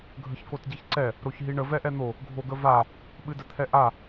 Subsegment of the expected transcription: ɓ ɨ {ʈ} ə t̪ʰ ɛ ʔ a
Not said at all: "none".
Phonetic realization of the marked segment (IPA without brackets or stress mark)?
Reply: d